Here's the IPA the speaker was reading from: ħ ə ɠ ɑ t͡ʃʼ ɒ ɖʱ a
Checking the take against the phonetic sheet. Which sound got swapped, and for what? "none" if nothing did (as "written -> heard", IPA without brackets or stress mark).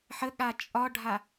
ɑ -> a